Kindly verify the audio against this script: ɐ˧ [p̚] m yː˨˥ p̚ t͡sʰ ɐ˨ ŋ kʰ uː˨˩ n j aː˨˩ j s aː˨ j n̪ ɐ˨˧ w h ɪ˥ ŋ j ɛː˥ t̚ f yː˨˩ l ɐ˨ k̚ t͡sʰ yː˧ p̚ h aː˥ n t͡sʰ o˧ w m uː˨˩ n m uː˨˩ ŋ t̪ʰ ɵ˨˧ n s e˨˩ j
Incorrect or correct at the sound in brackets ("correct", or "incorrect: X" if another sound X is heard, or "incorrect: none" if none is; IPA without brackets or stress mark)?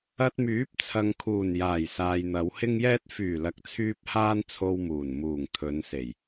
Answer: incorrect: t̚